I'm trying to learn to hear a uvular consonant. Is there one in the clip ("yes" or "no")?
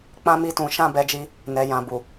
no